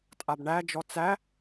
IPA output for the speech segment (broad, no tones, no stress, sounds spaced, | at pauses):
tʼ a b ɳ æ d͡ʒ ɔ t͡s æ